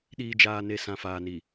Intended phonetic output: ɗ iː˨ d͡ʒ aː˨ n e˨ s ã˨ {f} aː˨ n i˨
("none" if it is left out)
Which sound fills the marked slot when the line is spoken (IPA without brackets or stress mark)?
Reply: f